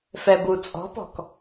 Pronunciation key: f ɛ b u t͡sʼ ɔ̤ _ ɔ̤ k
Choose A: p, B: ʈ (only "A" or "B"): A